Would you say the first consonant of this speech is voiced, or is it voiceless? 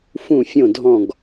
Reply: voiceless